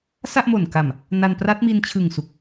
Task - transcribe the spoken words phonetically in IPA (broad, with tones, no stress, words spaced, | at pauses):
sa˥˩ʔmo˨˩nka˨˩m | na˧npra˦˥t̚mi˧n t͡ɕʰɯ˨˩ŋ su˨˩k̚